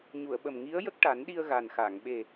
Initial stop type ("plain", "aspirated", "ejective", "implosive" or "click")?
implosive